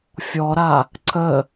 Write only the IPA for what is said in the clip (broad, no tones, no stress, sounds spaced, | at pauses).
fʲ ɔ ɾ a | ǀ ə